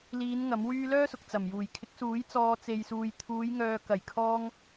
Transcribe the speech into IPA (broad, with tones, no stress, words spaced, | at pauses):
liː˨˧n ŋɐ˨˥mwyː˥ lœː˥sʊ˨k̚ t͡sɐ˨˩mjuː˨˩j kʰɪ˨˥k̚suː˨˥j t͡sɔː˧ t͡se˨jsuː˨jt̪ʰuː˨˧jŋœː˨ kɐ˨˩jkʰɔː˧ŋ